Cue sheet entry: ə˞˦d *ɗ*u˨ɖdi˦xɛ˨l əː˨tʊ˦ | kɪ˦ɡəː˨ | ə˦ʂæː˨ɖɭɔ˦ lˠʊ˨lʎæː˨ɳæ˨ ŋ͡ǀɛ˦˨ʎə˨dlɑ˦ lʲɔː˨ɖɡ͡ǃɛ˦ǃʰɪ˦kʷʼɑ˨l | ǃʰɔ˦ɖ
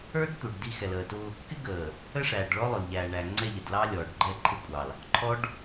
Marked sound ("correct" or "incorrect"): incorrect